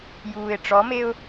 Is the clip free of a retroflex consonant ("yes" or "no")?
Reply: no